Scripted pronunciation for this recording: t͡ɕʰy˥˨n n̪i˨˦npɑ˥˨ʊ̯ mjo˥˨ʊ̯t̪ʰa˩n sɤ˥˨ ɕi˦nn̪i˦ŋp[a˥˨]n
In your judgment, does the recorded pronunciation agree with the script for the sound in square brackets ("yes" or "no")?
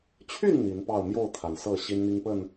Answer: no